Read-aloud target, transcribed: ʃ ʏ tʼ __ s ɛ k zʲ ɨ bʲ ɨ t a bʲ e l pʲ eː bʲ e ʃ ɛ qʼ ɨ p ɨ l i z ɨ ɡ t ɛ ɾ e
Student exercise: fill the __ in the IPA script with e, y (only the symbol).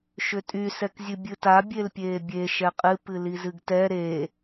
y